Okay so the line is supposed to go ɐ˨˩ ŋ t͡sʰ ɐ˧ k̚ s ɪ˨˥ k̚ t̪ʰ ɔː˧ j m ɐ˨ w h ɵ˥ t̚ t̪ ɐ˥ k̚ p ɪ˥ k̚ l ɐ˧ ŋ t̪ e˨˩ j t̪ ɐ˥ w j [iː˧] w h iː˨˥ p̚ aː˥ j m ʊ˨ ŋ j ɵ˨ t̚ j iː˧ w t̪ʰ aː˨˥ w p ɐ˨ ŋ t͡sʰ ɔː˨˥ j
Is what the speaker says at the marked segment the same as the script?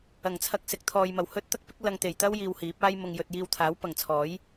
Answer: yes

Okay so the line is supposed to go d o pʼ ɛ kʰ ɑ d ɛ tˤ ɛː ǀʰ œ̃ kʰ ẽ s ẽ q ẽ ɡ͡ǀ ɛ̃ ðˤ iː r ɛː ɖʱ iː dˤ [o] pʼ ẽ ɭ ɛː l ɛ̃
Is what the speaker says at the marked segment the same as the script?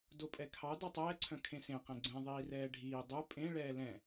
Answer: no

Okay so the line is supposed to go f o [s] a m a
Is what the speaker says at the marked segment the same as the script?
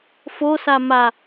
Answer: yes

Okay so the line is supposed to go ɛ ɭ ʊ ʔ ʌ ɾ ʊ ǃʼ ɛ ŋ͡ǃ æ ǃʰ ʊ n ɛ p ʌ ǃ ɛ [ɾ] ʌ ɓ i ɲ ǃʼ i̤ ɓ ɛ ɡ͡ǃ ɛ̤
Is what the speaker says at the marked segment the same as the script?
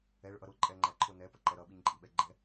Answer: yes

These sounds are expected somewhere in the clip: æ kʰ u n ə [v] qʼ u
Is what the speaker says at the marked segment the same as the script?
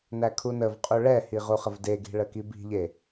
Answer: yes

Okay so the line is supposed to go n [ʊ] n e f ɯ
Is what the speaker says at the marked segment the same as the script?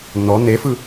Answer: no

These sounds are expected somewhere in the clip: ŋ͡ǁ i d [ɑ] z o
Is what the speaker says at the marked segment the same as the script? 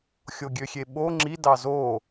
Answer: yes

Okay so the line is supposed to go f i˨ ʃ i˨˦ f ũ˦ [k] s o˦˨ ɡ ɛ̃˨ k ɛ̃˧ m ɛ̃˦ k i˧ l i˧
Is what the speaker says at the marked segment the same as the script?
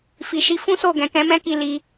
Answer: no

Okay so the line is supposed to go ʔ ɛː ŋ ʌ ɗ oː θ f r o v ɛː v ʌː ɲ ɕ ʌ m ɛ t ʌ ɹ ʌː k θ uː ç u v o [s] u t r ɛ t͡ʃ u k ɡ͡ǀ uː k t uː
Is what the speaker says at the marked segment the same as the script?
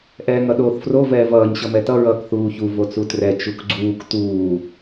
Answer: no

